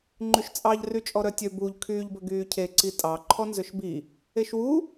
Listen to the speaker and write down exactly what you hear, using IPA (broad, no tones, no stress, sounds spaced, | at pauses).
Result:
ŋ͡ǃ ʉ ʃ t͡sʼ ɑ ʎ r y t͡ʃʼ ɔ ɾ œ tʲ ø b u ʎ kʰ yː ʎ b ɵ ɡ yː cʰ e ǀ i tʼ ɑ ǃʰ ɔ n z ø ʃ b i | e ʃ w u